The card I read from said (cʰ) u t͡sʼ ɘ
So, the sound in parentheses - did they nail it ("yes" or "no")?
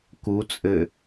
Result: no